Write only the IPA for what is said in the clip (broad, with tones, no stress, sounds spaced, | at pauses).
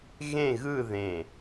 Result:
ɣ ẽ˥˧ ɣ ɯ˥˧ ð ẽ˧˩